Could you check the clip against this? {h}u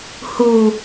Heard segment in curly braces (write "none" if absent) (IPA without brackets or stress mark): h